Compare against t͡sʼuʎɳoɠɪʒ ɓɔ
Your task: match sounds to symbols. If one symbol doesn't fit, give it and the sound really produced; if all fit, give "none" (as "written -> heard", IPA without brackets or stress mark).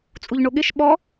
ʒ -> ʃ